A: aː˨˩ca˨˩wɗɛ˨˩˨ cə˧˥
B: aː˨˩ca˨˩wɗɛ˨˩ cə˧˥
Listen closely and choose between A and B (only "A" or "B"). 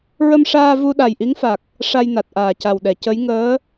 A